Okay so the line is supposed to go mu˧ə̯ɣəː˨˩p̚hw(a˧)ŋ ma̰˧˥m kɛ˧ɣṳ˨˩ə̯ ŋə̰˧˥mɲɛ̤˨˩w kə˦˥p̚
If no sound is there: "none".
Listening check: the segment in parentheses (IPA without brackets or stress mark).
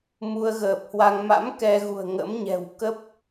a˧